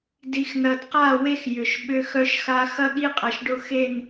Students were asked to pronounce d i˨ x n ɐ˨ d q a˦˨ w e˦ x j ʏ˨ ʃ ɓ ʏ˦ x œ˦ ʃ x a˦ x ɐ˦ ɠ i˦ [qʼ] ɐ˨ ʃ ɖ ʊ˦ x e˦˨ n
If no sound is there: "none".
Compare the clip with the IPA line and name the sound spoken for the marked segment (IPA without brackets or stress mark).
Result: qʼ